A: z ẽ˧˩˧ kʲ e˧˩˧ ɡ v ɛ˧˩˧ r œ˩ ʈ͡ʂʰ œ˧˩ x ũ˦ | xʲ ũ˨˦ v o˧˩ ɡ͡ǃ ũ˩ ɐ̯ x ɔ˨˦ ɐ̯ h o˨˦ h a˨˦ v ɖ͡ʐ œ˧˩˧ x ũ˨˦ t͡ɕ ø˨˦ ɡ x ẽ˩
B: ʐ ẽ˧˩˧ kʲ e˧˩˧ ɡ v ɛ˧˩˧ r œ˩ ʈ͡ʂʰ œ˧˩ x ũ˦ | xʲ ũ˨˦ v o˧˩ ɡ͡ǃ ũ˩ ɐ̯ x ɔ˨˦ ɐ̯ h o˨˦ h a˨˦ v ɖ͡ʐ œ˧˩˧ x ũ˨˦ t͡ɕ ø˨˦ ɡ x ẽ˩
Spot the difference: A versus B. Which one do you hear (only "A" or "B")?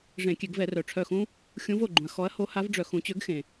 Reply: B